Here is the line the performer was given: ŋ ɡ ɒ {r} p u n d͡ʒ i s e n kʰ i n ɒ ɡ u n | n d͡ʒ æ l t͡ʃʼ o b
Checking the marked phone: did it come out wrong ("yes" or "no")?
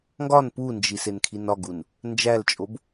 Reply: yes